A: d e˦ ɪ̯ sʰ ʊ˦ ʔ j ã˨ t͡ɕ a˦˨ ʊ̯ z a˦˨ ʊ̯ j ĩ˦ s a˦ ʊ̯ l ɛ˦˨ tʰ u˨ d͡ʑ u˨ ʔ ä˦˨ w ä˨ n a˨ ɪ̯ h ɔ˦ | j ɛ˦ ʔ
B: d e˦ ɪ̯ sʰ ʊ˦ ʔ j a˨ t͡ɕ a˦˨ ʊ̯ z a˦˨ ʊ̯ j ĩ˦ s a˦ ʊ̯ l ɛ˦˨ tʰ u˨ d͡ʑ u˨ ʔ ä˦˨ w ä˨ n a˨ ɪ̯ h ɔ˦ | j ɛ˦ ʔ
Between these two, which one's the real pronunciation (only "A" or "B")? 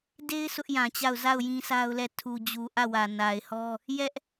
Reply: A